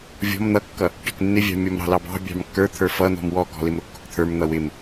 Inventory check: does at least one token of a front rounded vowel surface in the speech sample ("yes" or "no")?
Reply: no